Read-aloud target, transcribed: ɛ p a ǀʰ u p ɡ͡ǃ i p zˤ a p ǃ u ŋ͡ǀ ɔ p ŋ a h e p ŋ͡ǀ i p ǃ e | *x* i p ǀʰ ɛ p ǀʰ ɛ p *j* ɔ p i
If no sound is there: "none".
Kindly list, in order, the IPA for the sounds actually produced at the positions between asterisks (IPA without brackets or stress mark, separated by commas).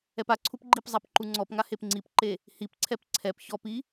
h, ç